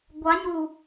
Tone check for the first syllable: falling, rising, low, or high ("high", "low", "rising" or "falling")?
rising